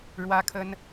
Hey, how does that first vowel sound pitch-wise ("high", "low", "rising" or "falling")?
high